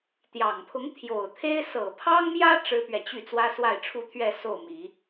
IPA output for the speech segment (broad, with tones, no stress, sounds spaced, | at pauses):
t̪ j ɑ˨˩ ŋ pʰ ʊ˧˥ ŋ t̪ʰ j o˨˩ ʊ̯ t̪ʰ e˥ ɪ̯ s ɤ˨˩ pʰ ɑ˥ ŋ m j ä˥ ʈ͡ʂ ɻ̩˥ p ɥ ɛ˨ t͡ɕ y˥˩ t͡s w ä˥ s w a˥˩ ɪ̯ ʈ͡ʂʰ u˥ t̪ʰ ɥ ɛ˥˧ s o˥˩ ʊ̯ m i˨˩˦